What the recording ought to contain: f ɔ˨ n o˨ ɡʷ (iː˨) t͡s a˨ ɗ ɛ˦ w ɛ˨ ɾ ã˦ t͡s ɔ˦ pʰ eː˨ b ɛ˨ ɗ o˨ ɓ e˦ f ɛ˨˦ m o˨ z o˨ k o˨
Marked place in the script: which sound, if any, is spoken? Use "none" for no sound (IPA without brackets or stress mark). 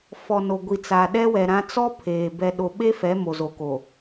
i˨